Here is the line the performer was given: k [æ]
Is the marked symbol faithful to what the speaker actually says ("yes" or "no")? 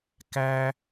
yes